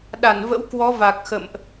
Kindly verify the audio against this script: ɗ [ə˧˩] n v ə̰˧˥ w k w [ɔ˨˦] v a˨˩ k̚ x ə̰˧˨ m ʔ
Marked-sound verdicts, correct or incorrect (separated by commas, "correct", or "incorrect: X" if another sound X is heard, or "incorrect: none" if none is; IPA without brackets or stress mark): incorrect: a˧˩, correct